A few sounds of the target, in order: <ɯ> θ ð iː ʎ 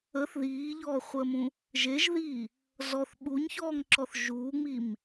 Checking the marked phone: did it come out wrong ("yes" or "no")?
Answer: yes